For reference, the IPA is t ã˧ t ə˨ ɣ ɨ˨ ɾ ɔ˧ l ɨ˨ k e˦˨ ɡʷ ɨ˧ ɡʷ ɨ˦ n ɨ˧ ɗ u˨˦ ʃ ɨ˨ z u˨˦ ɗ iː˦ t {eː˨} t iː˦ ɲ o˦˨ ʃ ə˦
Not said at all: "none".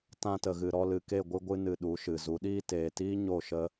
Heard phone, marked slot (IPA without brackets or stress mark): eː˨